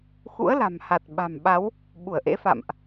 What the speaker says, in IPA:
xṵ˧˥ə̯la̤˨˩m ha˨˩t̚ɓa̤˨˩mɓa˨˦w | ɓu˧˩ə̯ʔḛ˧˥fa̰˧˨mʔ

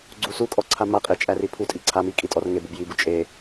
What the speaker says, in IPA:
ɡ͡ǀusukʼɔ ǀʰamaqʼe t͡ʃʼæripʰutʼi ǀʰami kʼitʼɔrŋebub jibu t͡ʃʼe

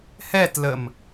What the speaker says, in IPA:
hɛtləm

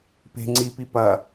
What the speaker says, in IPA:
pe̤ ŋ͡ǀipi pɐ

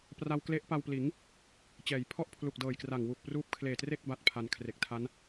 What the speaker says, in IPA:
pra˧wkle˦˥ʔpa˧wpliː˩˦ŋ | t͡ɕɛː˩˦j pʰɔ˥˩ʔpʰlu˨˩k̚dɤː˨˩jkra˨˩ŋ wu˨˩k̚pruː˦˥p̚ kʰleː˨˩tre˥˩k̚ ba˥˩t̚pʰa˧n kʰre˨˩k̚tʰa˦˥n

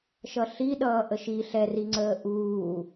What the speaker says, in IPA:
ʃʌɬi ɗʌːʔəʃi ɬɛri ŋ͡ǀəːʔuː

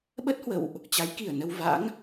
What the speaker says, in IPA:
ɓə˦˥t̚hwə̰˧˨wʔ | t͡ɕa˨˦jki˧˩ə̯nə˧w va̰˧˥ŋ

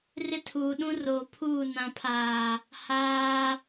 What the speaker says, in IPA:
rɪ˦tʰuː˨ɗũ˦roː˨ pʰuː˦˨ nã˨pʰaː˨ | haː˦

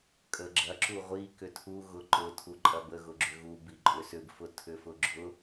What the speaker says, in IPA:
kʼəɡ͡ǁɐ ǁuʁʷi kʏtʰu ɣʊǃʊ tʰuǃʼɐbə ɣʊɡ͡ǁʏɣu biǃʼʏsʏb fʊtʰʏfʊɡ͡ǁʊ

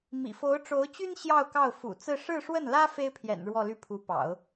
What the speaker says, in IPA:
mḭ˨˩fo˧˥ʊ̯ʈ͡ʂo˧˥ʊ̯t͡ɕy˥n ɕjɑ˥˧ʊ̯kɑ˥˩ʊ̯ fṵ˨˩ t͡sɹ̩˥˧ ʂɻ̩˥˧ʂwə˥˩nlä˥ fe˥ɪ̯pʰjɛ̰˨˩n ɻwɔ˥˧ly˥˩ pʰu˧˥pɑ̰˨˩˦ʊ̯

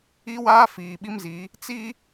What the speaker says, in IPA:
i˦waː˦ fiː˨ɓi˦mzi˨˦ | t͡si˦

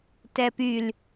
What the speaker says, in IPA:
tɛpyl

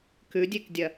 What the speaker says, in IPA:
kʉdʲekdʲɐ

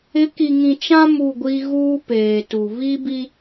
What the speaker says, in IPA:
ɪ˨˦ki˨ŋĩ˨t͡ʃã˦ mu˦˨ɡʷi˦ ɣuː˦peː˨tu˨ βi˦bi˦

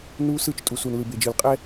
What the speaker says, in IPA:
nu˦sɯ˦˨t͡ʃ tʼu˨su˨nlɯ˨b e˨d͡ʒɯ˨lqʼɛ˦

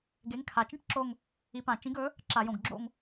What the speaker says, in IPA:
ɡe˨˥ŋkʰa˨˩t͡ʃĩ˥ʈǁo˦˨ŋ | i˨˥pã˨˩ t͡ʃĩ˨˥ɡɵ˨˥ | ǁa˧˩˧jõ˨˩ɡɡ͡ǁo̰˦˨ŋ

